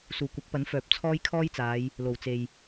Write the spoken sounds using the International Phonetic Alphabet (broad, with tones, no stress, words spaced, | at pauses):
suː˨˩kʷɐ˨˥k̚pɐ˨˥n fœː˨p̚t͡sʰɔː˥jkʰɔː˥jt͡saː˨˧j | lo˨˩wt͡se˨j